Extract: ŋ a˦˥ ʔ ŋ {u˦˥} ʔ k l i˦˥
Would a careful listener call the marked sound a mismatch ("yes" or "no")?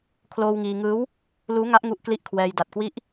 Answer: no